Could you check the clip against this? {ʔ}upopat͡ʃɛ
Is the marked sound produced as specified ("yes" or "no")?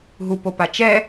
no